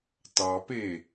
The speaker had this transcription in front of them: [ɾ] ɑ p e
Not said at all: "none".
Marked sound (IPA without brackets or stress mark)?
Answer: t